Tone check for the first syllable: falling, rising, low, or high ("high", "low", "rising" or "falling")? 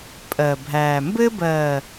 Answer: low